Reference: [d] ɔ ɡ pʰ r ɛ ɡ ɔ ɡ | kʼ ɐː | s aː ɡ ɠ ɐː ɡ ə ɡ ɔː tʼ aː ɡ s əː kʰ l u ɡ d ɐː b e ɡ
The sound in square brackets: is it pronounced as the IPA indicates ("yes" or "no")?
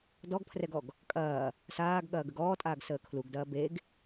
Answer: yes